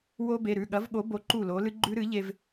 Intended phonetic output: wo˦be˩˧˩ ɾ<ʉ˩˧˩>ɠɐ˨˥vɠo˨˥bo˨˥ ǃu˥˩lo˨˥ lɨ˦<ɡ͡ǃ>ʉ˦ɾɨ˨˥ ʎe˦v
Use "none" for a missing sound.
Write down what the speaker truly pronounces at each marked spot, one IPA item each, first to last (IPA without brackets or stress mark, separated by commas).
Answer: ʉ˩˧˩, ɡ͡ǃ